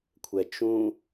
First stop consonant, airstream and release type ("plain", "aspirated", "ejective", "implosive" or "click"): aspirated